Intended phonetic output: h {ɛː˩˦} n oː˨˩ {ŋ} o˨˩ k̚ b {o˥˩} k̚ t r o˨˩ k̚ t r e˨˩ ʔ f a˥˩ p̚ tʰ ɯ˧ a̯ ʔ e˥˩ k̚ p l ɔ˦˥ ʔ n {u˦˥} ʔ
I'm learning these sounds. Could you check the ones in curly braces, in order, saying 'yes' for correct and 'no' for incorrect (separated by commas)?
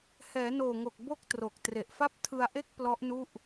yes, yes, yes, no